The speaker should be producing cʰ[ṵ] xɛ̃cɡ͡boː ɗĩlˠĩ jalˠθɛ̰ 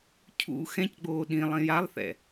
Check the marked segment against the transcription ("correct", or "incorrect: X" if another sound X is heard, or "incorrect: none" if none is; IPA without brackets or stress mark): correct